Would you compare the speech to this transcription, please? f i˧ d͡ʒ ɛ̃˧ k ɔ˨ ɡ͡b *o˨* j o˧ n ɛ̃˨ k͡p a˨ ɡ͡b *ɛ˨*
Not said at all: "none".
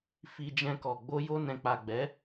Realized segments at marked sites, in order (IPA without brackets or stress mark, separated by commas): o˧, ɛ˨˦